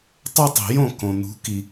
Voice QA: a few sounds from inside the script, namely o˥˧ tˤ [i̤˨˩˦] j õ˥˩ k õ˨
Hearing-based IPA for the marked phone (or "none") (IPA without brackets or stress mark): i̤˨˩˦